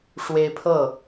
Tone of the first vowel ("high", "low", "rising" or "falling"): high